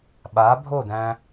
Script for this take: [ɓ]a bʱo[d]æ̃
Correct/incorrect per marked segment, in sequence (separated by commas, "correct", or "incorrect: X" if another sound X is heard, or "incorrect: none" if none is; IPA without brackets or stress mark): correct, correct